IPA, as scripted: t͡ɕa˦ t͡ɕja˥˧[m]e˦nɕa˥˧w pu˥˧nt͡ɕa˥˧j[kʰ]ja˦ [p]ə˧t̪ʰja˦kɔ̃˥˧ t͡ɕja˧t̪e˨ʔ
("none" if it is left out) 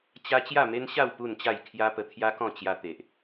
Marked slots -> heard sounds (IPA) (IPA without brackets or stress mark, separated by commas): m, kʰ, p